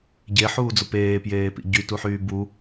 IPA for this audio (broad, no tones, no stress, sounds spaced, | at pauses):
ɟ e ħ uː d͡z ʊ p eː p j eː p ḭ ɟ y t u ħ yː b u